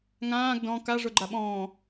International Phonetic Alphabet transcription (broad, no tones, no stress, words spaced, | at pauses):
ŋãːɡ dɔ̃ ka ʐoɡ͡ǃaɓɔ̃ː